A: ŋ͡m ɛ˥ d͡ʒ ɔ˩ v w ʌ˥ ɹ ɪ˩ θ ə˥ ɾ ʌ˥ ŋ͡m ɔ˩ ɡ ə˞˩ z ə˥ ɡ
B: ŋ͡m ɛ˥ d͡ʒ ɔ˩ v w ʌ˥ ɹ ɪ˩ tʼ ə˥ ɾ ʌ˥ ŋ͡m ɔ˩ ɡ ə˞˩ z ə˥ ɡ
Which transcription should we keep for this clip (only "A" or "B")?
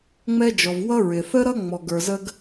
A